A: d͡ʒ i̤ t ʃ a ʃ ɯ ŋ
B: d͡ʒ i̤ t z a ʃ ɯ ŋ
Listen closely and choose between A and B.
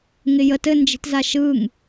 B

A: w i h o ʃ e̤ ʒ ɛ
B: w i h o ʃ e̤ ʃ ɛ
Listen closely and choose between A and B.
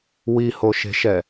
B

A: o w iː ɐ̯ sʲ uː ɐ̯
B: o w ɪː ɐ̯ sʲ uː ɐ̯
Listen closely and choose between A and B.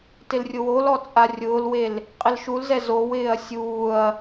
B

